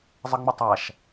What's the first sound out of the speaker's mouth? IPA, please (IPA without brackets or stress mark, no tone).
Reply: zˤ